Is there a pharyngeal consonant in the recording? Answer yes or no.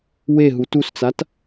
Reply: no